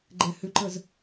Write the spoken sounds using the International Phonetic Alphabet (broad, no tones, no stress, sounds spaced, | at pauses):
ɡ͡ǃ ɛ h ʏ ǃ ə z